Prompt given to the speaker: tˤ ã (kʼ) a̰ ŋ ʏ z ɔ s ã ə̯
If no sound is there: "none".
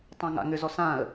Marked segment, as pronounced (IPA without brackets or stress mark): ŋ